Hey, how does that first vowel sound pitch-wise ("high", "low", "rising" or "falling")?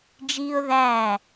high